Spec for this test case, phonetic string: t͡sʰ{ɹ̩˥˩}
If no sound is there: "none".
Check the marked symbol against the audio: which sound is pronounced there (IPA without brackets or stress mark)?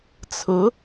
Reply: ɹ̩˧˥